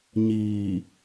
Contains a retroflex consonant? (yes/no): no